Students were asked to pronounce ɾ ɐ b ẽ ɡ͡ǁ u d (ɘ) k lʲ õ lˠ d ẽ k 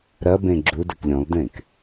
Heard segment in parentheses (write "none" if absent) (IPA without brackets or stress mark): ɘ